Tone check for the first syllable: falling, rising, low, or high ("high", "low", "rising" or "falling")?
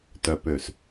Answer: low